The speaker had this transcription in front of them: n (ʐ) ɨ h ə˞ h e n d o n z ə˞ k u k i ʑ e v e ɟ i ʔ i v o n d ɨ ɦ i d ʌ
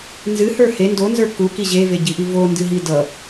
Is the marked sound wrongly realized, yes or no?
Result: yes